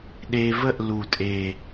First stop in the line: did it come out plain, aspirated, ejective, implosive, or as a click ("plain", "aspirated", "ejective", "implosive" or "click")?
implosive